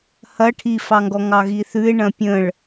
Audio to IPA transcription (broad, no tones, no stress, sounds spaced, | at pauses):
h ɐ ʈʰ i f ɑ ŋ ɡ ɔ ŋ ɑ ɣ i θ ʉ ɪ̯ ɳ ɐ̃ pʲ ə̃ ɭ